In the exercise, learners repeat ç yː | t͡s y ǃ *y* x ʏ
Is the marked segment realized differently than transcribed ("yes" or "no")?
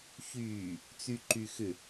no